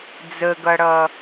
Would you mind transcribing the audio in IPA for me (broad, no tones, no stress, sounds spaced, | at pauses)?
d͡z ə ɡ ʌ ɽ ʌ